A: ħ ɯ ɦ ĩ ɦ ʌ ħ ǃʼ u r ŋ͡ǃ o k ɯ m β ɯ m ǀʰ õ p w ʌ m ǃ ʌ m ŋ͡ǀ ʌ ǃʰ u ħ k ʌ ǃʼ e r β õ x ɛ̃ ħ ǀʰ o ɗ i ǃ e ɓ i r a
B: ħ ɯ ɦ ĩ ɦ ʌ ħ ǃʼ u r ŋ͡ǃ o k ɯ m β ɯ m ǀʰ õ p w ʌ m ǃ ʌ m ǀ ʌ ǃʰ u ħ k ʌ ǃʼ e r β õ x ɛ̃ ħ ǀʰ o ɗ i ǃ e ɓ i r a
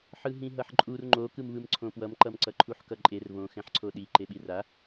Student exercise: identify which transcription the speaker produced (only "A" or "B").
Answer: B